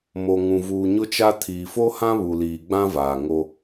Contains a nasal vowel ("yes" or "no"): yes